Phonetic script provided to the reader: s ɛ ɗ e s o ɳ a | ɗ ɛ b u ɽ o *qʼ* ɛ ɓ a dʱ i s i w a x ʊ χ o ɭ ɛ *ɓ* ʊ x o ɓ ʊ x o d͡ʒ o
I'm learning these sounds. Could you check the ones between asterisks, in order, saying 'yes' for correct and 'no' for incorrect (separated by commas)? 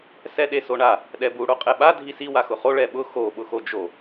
yes, yes